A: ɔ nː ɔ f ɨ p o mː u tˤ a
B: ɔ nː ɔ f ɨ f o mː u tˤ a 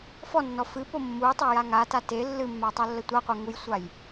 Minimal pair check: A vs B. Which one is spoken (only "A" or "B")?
A